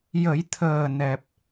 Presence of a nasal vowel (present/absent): absent